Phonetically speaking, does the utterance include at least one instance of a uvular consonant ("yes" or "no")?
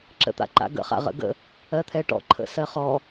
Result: yes